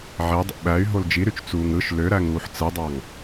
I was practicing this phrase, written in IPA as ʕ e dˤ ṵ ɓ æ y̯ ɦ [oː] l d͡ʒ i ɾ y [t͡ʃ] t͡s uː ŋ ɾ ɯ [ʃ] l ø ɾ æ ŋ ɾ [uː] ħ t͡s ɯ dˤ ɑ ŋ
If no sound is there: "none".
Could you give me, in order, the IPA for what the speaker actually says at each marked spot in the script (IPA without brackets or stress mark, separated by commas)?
o, t͡ʃ, ʃ, uː